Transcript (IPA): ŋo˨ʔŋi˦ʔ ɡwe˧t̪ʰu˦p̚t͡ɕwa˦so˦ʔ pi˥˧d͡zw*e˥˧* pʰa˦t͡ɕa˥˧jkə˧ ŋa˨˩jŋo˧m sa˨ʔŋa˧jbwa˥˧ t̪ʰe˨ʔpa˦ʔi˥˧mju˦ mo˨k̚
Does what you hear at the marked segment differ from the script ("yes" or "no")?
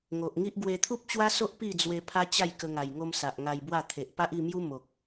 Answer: yes